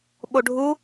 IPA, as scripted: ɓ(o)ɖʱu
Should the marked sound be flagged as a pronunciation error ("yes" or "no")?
no